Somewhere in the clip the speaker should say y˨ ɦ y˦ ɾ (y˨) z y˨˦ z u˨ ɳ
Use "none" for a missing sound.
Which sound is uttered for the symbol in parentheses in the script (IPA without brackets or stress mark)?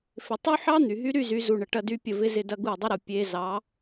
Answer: y˦˨